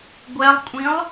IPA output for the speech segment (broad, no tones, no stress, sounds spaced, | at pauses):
ɡʷ ɛ lˠ kʷʼ ĩ lˠ